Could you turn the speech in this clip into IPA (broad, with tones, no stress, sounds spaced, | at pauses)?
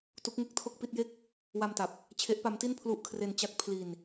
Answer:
t u˦˥ k̚ ŋ e˥˩ k̚ tʰ o˥˩ k̚ p i˥˩ t̚ j e˥˩ k̚ | w a˧ m t a˨˩ p̚ | t͡ɕʰ e˦˥ ʔ p a˦˥ m t i˥˩ n pʰ l u˦˥ ʔ kʰ r e˧ n t͡ɕ a˦˥ k̚ pʰ l i˧ n